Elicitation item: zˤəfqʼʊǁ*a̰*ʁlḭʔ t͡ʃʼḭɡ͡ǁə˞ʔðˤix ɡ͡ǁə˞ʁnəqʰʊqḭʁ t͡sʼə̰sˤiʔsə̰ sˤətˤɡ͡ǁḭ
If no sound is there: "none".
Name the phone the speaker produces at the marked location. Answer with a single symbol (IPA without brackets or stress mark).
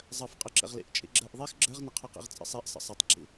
ə̰